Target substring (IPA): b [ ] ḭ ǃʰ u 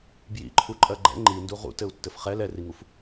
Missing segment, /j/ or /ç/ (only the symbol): j